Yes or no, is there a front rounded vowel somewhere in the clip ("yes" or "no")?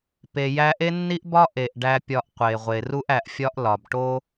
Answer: no